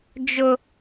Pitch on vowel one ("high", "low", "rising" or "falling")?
high